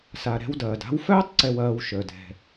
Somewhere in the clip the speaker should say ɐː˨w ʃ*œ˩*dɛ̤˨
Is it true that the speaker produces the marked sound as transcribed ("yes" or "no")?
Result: no